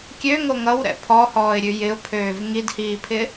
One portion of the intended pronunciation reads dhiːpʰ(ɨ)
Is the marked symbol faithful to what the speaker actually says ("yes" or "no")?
no